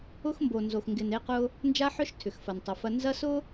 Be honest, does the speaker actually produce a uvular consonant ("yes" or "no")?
yes